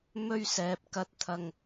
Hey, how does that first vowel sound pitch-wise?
high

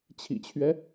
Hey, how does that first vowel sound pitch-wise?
low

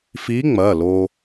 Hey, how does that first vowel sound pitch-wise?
rising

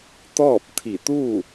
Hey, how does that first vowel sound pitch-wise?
falling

